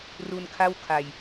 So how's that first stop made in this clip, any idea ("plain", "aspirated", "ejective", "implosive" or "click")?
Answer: aspirated